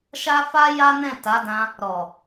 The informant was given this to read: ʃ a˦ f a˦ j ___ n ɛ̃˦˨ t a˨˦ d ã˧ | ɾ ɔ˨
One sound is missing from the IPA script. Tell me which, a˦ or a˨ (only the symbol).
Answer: a˦